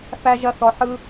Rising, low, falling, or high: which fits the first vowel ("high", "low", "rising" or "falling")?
high